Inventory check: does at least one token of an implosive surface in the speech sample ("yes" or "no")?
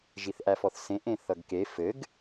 no